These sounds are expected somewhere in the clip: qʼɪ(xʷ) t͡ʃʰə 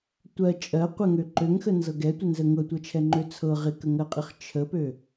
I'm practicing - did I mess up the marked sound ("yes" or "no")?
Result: yes